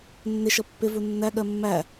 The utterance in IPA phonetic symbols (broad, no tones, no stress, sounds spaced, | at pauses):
nː ɪ ʃ ʌ pː ɪ v u nː æ ɠ ɜ mː æ